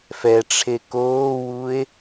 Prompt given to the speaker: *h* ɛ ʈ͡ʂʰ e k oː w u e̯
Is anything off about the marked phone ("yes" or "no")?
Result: yes